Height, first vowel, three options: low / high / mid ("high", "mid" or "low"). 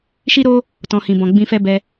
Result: high